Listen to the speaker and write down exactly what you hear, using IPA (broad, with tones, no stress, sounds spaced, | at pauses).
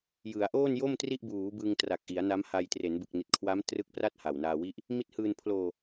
j ɯ˩˦ a̯ ʔ oː˥˩ n j o˥˩ m t r i˥˩ ʔ b uː˩˦ b ɯ˧ ŋ t r a˨˩ k̚ ʔ i˩˦ a̯ n a˦˥ m h a˧ j t r e˩˦ n b ɯ˨˩ k̚ n i˨˩ t̚ kʰ w a˦˥ m t r ɯ˦˥ k̚ p r a˥˩ t̚ h a˨˩ w n aː˧ w i˦˥ ʔ | m i˦˥ t̚ h ɯː˧ n pʰ l oː˧